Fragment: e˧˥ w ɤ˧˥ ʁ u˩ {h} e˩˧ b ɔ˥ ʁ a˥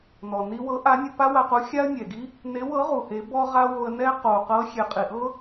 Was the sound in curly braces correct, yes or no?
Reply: yes